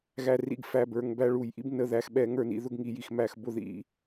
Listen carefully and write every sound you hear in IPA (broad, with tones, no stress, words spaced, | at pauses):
ɣæ˧rḭ˧ɡ fæ˨˩bə˞˨˩ŋ bæ˧ɭu˨˩˦jʔḭ˥b nə˧ðæ˧x ɓɛ˨˩˦ŋə˞˥˩nḭ˨˩˦ ðʊ˥ɡŋi˨˩˦ji˨˩xmæ˨˩˦x bʊ˥˩ðḭ˨˩˦